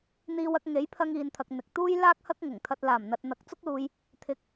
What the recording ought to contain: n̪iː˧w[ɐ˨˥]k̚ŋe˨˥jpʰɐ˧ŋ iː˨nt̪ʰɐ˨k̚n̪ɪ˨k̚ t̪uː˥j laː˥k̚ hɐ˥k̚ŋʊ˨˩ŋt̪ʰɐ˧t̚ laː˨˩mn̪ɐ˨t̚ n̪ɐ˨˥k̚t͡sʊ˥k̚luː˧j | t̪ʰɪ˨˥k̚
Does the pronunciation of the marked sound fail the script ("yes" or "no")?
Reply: yes